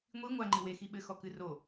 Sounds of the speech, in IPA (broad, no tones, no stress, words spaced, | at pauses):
ŋʷi ŋʷa ŋ͡ǃɨwexi ɓɘxɔkɨ ro